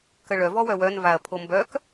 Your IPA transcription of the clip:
k ə ɭ œ v ɔ w œ w œ n v a ɐ̯ pʰ o m b œ k

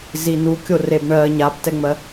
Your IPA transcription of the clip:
z i n̪ u kʲ o r e b ɳ ɜ ɲ a b t ɛ ŋ͡m ɜ

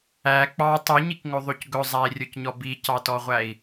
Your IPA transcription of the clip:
æ k͡p ɑ tˤ u ɲ i k ŋ ɵ ðˤ ʉ c ɡ ɵ zˤ æ i̯ rʲ ɵ c ɲ ɔ b i c ɑ t ɔ ʁʷ æ i̯

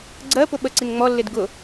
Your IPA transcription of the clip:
ɡ͡ǀ ɜ p ʊ ɓ ə ǀ i n ŋ͡m ɔ lː ɪ d ɡ ʊ

